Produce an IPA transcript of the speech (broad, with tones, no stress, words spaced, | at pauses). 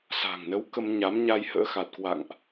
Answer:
sa̤˨˩ŋnə˨˦w kə˧mɲa˨˦mɲa˧jhə̰ː˧˥ xa˨˩t̚kwa̰˧˨ŋʔ